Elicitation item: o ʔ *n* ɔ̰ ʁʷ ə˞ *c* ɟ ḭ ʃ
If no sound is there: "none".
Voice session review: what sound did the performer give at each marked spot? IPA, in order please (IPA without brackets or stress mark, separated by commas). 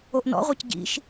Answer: n, c